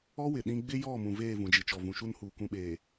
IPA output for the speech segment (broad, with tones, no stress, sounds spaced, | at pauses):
ɔ˦ w ɪ˨ ɗ ĩ˦ ɡ͡b ɪ˦ j ɔ˦˨ m ũ˨ v eː˦˨ v ũ˨ d͡ʒ i˨ t͡ʃ ɔ˨ v ũ˨ ʃ u˦ n h uː˨ k ũ˨ ɓ eː˨